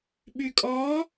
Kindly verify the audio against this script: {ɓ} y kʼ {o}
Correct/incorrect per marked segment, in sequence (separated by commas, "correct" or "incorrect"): correct, incorrect